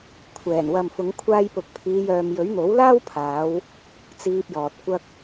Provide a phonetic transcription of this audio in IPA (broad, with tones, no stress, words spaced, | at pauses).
kʷʰɛː˨˩n wɐ˨mfʊ˨˧ŋkʷʰaː˧jpʊ˨k̚ pʰiː˨˧jœː˨mjɵ˨˥ɥ n̪o˨˥wlaː˥wpʰaː˨˧w | t͡siː˧p̚jɔː˨t̚kʷɐ˥k̚